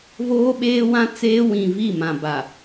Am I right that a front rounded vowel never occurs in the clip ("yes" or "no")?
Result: yes